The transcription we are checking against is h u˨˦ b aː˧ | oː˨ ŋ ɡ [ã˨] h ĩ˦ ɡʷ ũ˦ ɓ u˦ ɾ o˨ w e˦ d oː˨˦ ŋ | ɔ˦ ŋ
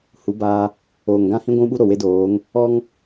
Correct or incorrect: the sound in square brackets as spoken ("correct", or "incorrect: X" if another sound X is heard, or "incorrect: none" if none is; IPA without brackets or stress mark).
incorrect: ã˦